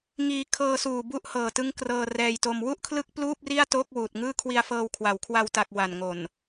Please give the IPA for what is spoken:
ŋ iː˧ kʰ ɤː˧ s uː˨˩ b u˦˥ ʔ h ɤː˨˩ t ɯ˦˥ ŋ k r ɤː˧ r ɛː˧ j t o˧ m w u˥˩ ʔ kʰ l ɯ˥˩ k̚ p l uː˥˩ p̚ r i˥˩ a̯ t oː˥˩ k̚ w uː˨˩ t̚ ŋ ɯː˥˩ kʰ w i˧ a̯ f ɤː˧ w kʰ w a˩˦ w kʰ w a˧ w t a˨˩ k̚ w a˨˩ n ŋ o˨˩ n

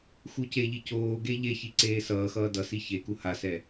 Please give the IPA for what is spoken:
x u c e ʎ i c oː ɡ e ʎ e ç i ǀ eː s ʌː x ʌː d ʌ s i ç e k u h a s ɛ

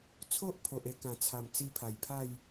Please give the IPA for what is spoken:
t͡sʰ o˦ ʔ pʰ o˨ ʔ e˧ k ã˨˩ t͡sʰ a˨˩ m t͡s i˧ pʰ a˨˩ j pʰ a˥˧ j

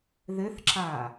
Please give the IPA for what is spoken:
ð ɘ θ ǁ a

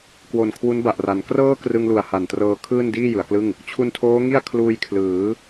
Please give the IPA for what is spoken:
k w o˨˩ n kʰ w u˦˥ n b a˨˩ ʔ r a˩˦ n k r ɤː˥˩ k r ɯ˧ ŋ l u˨˩ a̯ h a˨˩ n t r ɤː˧ kʰ ɯː˥˩ n d iː˥˩ j ɯ˩˦ a̯ k l ɯ˥˩ ŋ | t͡ɕʰ u˧ n tʰ oː˦˥ ŋ i˥˩ a̯ kʰ l uː˧ j kʰ l ɯː˩˦

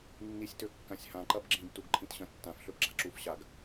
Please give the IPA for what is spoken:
nː i sʲ t ø kː ã sʲ h ã ǃ ɐ b ɡ͡ǁ ĩ b t u ɡ ǃʰ ĩ t ɕ ɐ̃ tː ã f ɬ ø p ɡ͡ǁ a̤ ǁ u f ɕ a ɡ

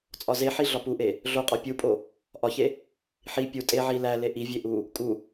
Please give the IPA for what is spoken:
t͡sʼ ɒ z e ħ i ɮ ɒ p u ʔ e | ɮ o qʼ ɒ pʲ u pʼ o | ʔ ɒ ç e | ħ i pʲ u tʼ e ʕ i l æ l e ʔ i vʲ e ʔ u | kʼ u

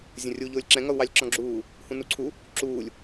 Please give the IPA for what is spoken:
zʲ ə̃ rʲ u ʎ ʊː lʲ ǁ ɛ̃ ŋ ʌ u̯ w ɑ lʲ ǁ ɔ̃ ɡ͡ǁ uː | h ũ n u ǀʰ u | ǁ uː lʲ

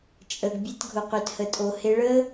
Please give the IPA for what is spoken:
t͡ʃʼ ə˧ ɡ bʲ ɛ˦ t ɡʱ ʊ˧ q ø˧ t h ə˧ tʼ o˧ h e˧ ɭ ə˦

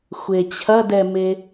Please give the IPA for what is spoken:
xʷ e t͡ɕʰ ɐ d ɛ m e

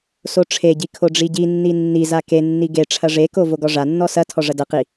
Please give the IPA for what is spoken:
s o ʈ͡ʂʰ e ɟ i kʰ o ɖ͡ʐ i ɟ i nː i nː i z a k e nː i ɡ e ʈ͡ʂʰ ɐ ʐ e k o v o ɡ ɔ ʐ a nː ɔ s ɐ tʰ ɔ ʐ ɐ d ɐ q i

